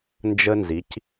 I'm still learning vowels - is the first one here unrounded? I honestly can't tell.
yes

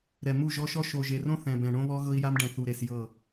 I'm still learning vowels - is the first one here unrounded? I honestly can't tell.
yes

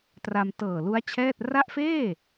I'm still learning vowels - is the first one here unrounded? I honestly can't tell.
yes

